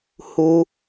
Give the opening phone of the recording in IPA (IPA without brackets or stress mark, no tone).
h